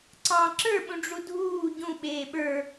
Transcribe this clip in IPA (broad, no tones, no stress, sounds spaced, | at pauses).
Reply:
ǀ ɑ̃ ǁ ə˞ ɓ ũ ɖ͡ʐ u dʱ uː ɟ ũ ɓ eː ɓ ə˞